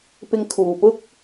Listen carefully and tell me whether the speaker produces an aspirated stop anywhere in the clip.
yes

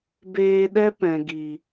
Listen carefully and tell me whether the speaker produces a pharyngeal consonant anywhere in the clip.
no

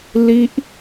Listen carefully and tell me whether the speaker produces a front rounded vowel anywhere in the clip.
no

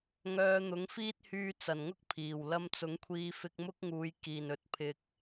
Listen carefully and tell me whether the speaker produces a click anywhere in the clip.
no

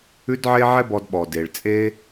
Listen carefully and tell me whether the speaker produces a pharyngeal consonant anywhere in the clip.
yes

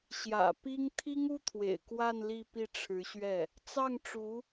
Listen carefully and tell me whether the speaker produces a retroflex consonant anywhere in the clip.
yes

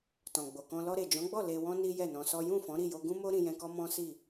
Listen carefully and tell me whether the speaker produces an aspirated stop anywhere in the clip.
no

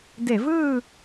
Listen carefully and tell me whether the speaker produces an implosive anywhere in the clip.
no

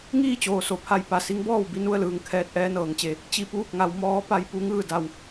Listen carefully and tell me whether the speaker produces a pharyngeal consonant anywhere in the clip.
no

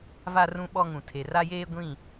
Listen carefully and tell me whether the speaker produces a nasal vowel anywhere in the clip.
yes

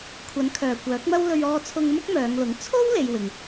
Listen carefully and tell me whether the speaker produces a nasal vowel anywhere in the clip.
no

